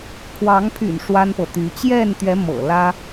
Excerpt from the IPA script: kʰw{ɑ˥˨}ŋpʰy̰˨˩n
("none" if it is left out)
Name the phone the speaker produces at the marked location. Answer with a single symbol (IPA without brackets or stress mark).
ɑ˨˦